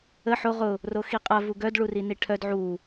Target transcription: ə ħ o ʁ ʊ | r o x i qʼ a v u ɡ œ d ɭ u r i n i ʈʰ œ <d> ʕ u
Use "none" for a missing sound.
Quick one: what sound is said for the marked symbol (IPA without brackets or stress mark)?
d